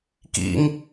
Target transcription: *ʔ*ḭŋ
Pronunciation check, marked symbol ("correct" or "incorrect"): incorrect